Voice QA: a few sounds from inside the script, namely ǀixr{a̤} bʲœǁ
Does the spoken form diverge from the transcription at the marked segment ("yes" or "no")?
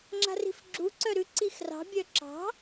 yes